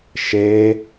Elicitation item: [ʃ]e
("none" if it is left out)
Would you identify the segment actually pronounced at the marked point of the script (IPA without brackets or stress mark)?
ʃ